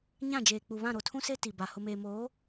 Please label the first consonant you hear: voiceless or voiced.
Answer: voiced